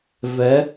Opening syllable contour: rising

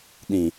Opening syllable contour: low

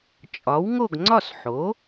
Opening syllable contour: rising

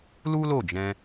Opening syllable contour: high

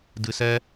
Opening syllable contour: low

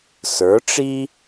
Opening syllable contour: rising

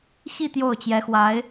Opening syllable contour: falling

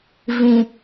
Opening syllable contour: low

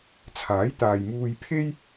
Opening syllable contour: rising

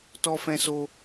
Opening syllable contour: high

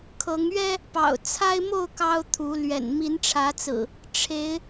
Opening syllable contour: rising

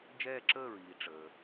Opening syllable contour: falling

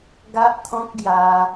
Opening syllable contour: high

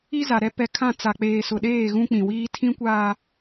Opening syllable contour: high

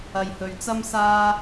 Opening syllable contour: low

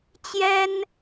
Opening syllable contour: high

